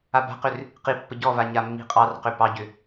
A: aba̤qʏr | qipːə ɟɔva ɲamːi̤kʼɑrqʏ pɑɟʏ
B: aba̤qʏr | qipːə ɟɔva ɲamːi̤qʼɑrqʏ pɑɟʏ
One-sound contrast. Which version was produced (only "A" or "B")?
B